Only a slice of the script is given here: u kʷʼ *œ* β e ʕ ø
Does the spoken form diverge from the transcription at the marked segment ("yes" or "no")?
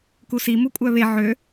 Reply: no